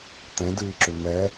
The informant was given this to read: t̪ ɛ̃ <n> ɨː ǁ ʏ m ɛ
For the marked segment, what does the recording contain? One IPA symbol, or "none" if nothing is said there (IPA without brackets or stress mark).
d